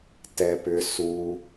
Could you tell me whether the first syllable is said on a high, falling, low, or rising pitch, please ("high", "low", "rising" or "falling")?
low